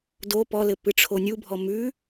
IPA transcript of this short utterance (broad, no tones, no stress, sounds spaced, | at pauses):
d o p ɔ l ɘ p ɨ ʈ͡ʂʰ o nʲ u bʱ ɔ m ʉ